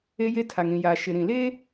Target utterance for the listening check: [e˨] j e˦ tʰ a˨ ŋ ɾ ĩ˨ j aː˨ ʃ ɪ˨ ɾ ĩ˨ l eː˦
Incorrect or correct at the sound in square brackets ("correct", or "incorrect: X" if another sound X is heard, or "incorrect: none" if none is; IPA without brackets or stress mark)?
incorrect: e˦